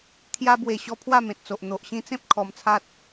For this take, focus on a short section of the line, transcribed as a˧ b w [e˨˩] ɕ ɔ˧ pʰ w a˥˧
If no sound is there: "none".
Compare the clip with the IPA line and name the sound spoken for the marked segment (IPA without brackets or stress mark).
e˨˩